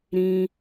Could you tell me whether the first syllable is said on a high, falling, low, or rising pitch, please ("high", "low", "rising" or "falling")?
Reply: high